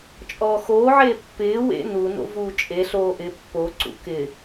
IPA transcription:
t͡ʃʼ ɔː x oː ʕ eː pː ɪː w ḛ n u n o̰ v uː t͡ʃʼ e ɬ oː ʔ ɪ pː o ǀ ṵ k ɪ

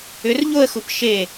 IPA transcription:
ʏ r ʎ o ə̯ x u p ʃ e

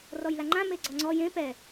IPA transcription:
r ɔ j l a ŋ͡ǃ ã m e ɡ͡ǀ ɔ ŋ͡ǀ ɔ j ẽ p ɛ

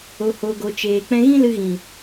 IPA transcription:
o˨ h oː˨ ɡ o˨ t͡ʃ eː˨ k͡p ɛ̃˧ ɣ ĩ˦ l ɨ˧ ɣ ĩ˨

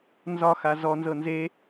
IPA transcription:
n z ɒ x a z ɔ n z ɤ n z e

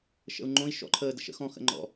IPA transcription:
ʃ ə̰ u̯ ŋ͡ǃ õ i̯ ʃ ɔ̰ ǃʰ əː d ə̰ ʃ ə̰ x ɔ̃ x ə̰ ŋ͡ǃ ɔ̰

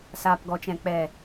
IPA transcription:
s aː˨ p ɡ ɔ˨ t͡ʃ ɛ̃˨ k͡p ɛ˨

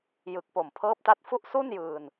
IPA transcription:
j ɯ˨˩ k̚ p o˨˩ m pʰ ɤː˦˥ p̚ t a˦˥ t̚ f u˥˩ ʔ s u˥˩ n j ɯː˧ n

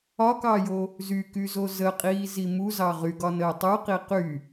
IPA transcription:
ɒ k ɑ j o | z y k y z o z ə qʼ iː z i m u z ɑ ʁ y ɡ ɒ n əː tˤ u q i q y

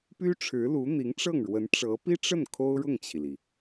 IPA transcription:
p y˥ ʈ͡ʂʰ ɻ̩˧˥ l u˧˥ n̪ i˧˥ ŋ ʈ͡ʂ ɤ˥˩ ŋ ɻ w ə˧˥ n ʈ͡ʂ ɤ˧˥ p i˥ ʈ͡ʂ ə˥˩ n kʰ o˥ ʊ̯ ɻ ʊ˥˩ ŋ t͡ɕʰ i˩ l i˩

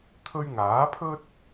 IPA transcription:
t̪ʰ ɵ˧ ɥ ŋ aː˨˥ pʰ ɵ˥ t̚

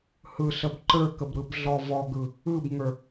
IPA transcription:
h ɯ ɬ ə b ǃ ə˞ k ə b ɾ ɯ b ɮ ɔ v ɔ ɡ ɯ | ɯ b ŋ ə˞

